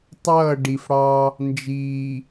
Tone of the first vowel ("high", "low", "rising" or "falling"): falling